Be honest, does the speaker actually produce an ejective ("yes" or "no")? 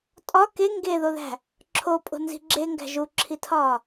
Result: yes